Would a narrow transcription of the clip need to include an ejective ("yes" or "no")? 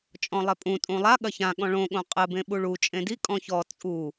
yes